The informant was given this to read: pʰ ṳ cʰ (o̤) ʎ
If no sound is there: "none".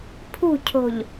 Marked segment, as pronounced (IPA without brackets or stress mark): o̤